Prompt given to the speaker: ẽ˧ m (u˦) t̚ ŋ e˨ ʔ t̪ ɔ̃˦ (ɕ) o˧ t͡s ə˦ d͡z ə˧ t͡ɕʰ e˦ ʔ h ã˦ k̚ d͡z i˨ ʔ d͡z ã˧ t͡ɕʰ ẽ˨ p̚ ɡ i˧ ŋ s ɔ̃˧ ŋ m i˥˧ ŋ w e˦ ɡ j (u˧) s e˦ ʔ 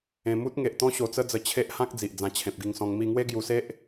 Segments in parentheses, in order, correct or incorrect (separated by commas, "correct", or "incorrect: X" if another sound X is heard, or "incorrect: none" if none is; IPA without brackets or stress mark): correct, correct, correct